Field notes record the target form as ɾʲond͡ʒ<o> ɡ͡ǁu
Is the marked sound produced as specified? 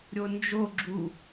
yes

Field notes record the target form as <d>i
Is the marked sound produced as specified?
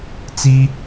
no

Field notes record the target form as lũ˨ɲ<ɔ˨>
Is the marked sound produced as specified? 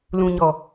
yes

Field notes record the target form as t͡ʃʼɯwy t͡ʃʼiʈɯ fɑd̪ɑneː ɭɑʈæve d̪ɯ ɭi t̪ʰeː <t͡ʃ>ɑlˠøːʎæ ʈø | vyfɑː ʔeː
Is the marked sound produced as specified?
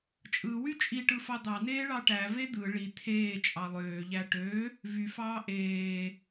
no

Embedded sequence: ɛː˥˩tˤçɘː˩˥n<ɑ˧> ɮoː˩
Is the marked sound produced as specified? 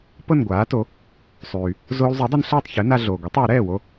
no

